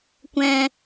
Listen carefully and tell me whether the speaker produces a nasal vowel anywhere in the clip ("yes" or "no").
yes